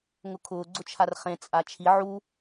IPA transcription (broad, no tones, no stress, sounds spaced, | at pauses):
ŋ ʊ kʰ ʊː ɡ͡ǀ ʊ t͡ʃʰ a r χ ẽ t͡sʼ a t͡ʃʰ i ʕ u